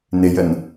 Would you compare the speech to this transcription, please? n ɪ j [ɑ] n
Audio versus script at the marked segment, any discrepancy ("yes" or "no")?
yes